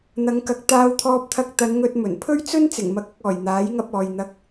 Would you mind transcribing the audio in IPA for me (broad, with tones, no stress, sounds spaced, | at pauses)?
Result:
n̪ ɐ˨˧ ŋ k ɐ˨˥ k̚ t̪ aː˧ w t̪ʰ ɔː˧ p̚ t̪ʰ ɐ˧ k̚ t̪ ɐ˨˧ n ŋ ɵ˧ t̚ m ɵ˨˩ n pʰ ɵ˥ ɥ t͡s ɵ˥ n t͡s ɪ˨˩ ŋ m ɐ˧ k̚ ɐ˧ k̚ ɔː˨˩ j n̪ aː˨˥ j ŋ ɐ˧ p̚ ɔː˨ j n̪ ɐ˧ k̚